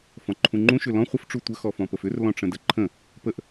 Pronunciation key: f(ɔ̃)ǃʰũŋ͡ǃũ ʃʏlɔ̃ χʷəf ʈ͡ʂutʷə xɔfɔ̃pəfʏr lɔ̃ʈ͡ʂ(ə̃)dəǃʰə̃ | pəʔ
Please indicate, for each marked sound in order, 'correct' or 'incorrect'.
correct, correct

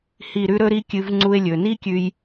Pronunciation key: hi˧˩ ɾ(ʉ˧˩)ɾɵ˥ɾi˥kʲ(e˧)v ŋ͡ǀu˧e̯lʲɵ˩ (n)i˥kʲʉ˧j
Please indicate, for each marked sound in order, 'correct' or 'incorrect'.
incorrect, incorrect, correct

